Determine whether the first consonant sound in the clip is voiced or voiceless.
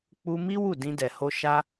voiceless